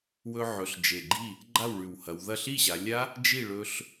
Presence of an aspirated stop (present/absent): absent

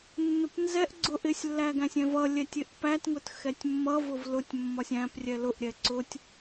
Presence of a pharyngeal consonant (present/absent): absent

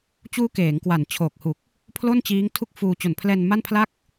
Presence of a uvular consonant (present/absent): absent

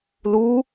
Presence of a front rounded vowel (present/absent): absent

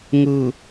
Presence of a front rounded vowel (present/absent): absent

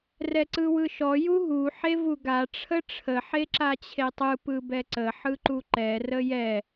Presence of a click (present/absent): present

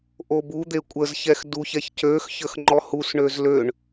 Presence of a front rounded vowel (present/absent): present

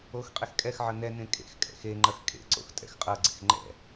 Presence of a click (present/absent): present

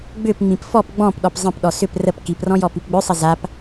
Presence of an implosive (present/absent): present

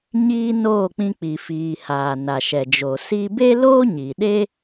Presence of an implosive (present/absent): present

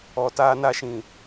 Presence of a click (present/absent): absent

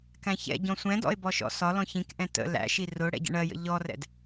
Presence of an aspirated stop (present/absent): absent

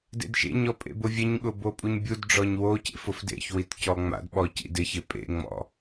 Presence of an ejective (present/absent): present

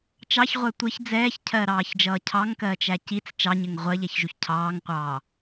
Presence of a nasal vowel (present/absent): absent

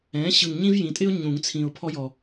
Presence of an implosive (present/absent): absent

